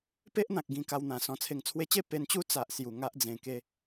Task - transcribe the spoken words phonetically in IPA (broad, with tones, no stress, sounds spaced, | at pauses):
p e˦ ʔ n̪ ã˨ k̚ ɡ ĩ˧ k a˧ w n̪ ã˨˩ s ɔ̃˨˩ t͡sʰ e˨˩ ŋ t͡sʰ w e˧ t͡ɕ e˥˧ p e˧ n t͡ɕ u˦ t͡s a˨ ʔ s j u˨˩ ŋ a˦ ʔ d͡z ẽ˧ k e˦